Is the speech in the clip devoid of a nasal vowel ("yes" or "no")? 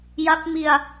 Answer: yes